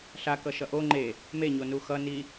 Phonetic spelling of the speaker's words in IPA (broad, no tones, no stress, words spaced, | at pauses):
ɬakʌʃʌ ʔo ŋ͡ǃe | meɲonu xʌ ni